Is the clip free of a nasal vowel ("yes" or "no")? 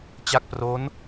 yes